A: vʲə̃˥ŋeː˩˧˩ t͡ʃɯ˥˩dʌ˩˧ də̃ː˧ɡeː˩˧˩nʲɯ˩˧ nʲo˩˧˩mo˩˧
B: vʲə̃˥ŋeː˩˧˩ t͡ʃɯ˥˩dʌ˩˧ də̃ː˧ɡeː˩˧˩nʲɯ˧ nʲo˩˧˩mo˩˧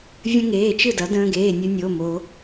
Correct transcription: B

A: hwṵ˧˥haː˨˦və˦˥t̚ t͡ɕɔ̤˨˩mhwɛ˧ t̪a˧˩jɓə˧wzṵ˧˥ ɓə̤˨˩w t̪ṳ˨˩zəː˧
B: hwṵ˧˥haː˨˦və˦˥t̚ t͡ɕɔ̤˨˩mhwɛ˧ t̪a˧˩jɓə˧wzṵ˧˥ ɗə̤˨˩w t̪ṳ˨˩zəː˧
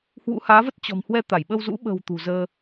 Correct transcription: A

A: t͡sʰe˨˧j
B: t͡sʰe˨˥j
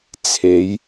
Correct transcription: A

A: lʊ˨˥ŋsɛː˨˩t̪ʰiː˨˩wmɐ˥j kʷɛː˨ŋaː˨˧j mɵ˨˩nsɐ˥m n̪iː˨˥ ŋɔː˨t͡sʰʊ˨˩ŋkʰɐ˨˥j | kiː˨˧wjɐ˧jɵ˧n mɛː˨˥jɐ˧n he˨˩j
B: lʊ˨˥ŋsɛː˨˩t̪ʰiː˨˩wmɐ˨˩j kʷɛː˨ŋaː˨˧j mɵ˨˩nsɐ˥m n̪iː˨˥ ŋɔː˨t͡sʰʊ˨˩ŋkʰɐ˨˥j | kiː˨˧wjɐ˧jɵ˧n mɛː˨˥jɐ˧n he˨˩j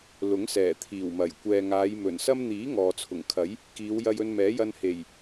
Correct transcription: B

